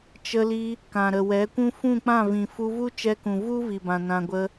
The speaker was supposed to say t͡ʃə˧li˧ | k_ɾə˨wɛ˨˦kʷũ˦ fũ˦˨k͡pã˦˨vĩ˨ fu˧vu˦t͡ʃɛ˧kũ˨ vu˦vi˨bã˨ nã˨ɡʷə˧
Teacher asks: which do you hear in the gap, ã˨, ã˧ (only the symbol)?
ã˨